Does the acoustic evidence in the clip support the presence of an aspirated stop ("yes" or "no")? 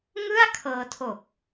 yes